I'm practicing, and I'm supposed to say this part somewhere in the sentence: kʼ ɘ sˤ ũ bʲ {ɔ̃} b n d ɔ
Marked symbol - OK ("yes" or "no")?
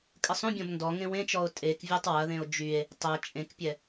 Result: yes